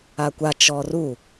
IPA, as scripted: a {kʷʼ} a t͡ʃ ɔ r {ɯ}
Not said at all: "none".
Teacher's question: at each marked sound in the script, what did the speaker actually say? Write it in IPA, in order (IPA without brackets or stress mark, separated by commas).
kʷ, u